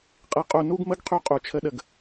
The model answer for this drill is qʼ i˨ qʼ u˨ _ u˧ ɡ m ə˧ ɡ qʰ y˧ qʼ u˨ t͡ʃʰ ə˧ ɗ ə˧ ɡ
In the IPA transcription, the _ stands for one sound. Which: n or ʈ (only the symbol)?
n